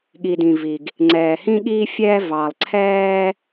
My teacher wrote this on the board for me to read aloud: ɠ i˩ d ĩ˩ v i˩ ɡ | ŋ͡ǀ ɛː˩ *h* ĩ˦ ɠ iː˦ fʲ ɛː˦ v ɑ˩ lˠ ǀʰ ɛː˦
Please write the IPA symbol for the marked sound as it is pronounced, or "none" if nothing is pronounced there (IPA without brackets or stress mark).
h